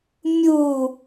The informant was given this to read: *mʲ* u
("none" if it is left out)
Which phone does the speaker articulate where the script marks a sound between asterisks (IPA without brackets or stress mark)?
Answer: mʲ